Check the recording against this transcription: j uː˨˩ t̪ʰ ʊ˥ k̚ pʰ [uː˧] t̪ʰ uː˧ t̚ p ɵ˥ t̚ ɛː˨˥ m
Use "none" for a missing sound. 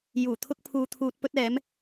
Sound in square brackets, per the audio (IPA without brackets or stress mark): uː˧